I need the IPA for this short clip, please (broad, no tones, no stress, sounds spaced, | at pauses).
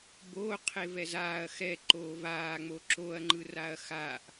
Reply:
b oː qʰ e v ɛ z aː ɐ̯ x ɛ ǃ oː v aː ŋ͡m o ǁ o ɐ̯ ŋ͡ǃ ɯ r a ɐ̯ x a ʔ